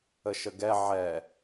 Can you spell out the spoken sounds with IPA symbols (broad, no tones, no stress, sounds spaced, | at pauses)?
ə ʃ ə ɡ ɛ ʕ ɛ